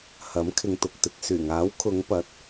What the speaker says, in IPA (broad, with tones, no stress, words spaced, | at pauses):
hɐ˨˥mkʰɪ˨ŋt̪ʊ˨k̚t̪ɪ˨k̚ syː˨˩ŋaː˨˥wkʰʊ˨˧ŋpɐ˨˥t̚